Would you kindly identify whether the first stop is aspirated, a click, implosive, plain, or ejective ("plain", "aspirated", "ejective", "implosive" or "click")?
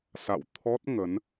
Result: aspirated